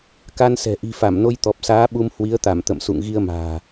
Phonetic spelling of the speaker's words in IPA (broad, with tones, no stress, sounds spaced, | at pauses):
k a˧ n s ɛ̤˨˩ ʔ i̤˨˩ f a˧˩ m n o˧ j t̪ ɔ˨˩ p̚ s aː˨˦ ɓ u˧ m h w i˨˦ ə̯ t̪ a˧˩ m t̪ ə̰˧˨ m s ṵ˧˨ ŋ ɣ i˧ ə̯ m a̤ː˨˩